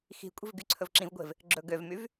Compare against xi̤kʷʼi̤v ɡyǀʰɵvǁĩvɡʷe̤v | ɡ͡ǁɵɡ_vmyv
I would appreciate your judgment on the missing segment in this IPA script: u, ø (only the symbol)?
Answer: ø